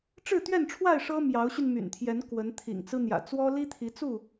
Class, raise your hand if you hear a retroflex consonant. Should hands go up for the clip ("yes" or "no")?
yes